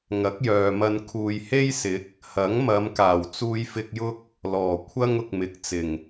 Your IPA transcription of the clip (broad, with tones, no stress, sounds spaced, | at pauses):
ŋ ɐ˨˥ k̚ j œː˨ m ɐ˧ n kʰ uː˨ j h e˥ j s ɪ˨˥ k̚ | h ɐ˨˥ ŋ m ɐ˨˧ m k aː˨˩ w t͡s uː˨ j f ɪ˨ k̚ j ʊ˧ k̚ | l ɔː˨˩ kʷʰ ɐ˥ ŋ ʊ˨ k̚ m ɪ˨˥ k̚ t͡s ɪ˨˩ ŋ